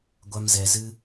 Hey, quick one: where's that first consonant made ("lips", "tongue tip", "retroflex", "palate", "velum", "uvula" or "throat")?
velum